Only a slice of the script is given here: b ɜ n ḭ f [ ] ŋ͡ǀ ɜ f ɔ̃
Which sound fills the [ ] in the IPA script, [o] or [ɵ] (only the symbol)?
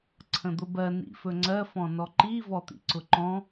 ɵ